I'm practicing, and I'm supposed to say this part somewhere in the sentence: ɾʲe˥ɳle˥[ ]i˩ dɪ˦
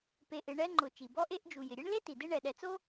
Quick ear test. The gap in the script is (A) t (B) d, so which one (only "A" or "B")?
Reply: A